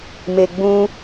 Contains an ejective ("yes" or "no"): no